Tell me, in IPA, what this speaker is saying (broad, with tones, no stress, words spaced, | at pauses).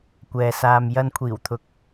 kʷɛː˨saː˨m jɐ˨nkʷʰiː˨˩wt̪ʰʊ˨k̚